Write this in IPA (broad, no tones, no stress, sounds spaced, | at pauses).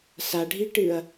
s a ɖʱ i ʈ ɨ ɐ̯